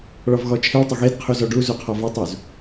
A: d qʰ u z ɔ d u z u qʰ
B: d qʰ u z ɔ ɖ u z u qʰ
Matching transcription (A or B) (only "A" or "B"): B